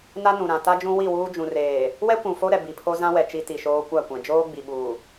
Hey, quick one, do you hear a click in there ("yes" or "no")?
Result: no